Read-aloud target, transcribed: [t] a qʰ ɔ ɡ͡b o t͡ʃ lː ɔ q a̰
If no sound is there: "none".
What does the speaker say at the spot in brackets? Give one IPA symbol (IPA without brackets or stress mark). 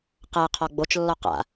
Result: q